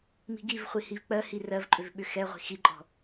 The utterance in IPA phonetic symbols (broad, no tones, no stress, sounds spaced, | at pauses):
m i̤ ɡ i v χʷ i h i v k͡p ɜ h i r ɜ v ǃʼ ʏ v ɓ ʏ x ɛ ʁʷ i̤ x i ǃʼ ɔ̤